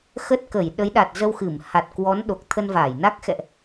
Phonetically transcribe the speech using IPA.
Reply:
x ə˦˥ t̚ k ə˧˩ j ɗ ə˨˦ j ɗ a˨˩ t̚ z ə˧ w x ɨ˧˩ m h a˨˩ t̚ k w ɔ˨˦ n ɗ o˨˩ k̚ t̪ʰ ə˧ n v aː˧˩ j n a˦˥ k̚ x ɛ̰˧˨ ʔ

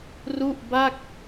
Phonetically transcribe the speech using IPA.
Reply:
r u˥˩ ʔ b a˥˩ k̚

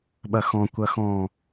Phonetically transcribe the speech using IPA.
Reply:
ɓ ɐ x ɔ̃ kʷ ɐ x ɔ̃

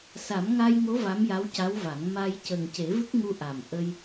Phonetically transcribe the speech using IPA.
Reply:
s a˨˩˦ m ŋ a˧ j ŋ o˧˥ v a˧˥ m j a˧˥ w c a˧˥ w v a˨˩˦ ŋ m a˧ j c ə˨˩ ŋ c e˨˩˦ v ɨ˦˥ k̚ ŋ u˧ ʔ a˨˩ m ʔ ə˧ j

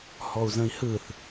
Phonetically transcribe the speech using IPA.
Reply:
h ɔ u̯ z ə̃ i̯ h ɯ θ

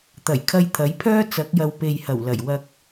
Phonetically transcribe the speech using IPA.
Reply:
t̪ ɐ˨˩ j kʰ ɐ˧ j t̪ʰ ɐ˨˥ j pʰ œː˥ t͡s ɐ˨˥ k̚ j ɐ˨ w p e˨ j h ɐ˨˩ w l ɐ˨˩ j w ɐ˧ k̚

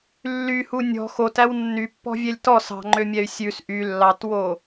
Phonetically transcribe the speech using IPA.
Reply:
lː y h u nʲ ɔ̤ x o t æ w nː y pː ɔ̤ vʲ ɛ lʲ t ɔ s ɑ̤ ŋ͡ǃ ø mʲ ɛ y̯ sʲ ʉ s ʔ y lː ɑ t w o

